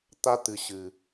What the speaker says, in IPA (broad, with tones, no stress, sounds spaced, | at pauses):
t̪ a˦ t̪ ɨ˨ ɕ ɨ˨